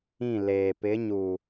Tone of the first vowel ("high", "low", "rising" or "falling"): falling